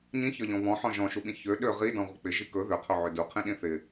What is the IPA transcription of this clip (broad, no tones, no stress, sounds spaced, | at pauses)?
ɲ ĩ ç ɒ ʎ ɔ̃ β ɔ̃ ħ ɔ̃ ʒ ɔ̃ ʃ u ɓ ĩ ç ø ɗ ø ʁ i d ɔ̃ ʁʷ ɪ k͡p ɪ ʒ i k ɵ ð ø qʰ ɵ ʕ ø d u qʰ ĩ ɗ ĩ θ ɪ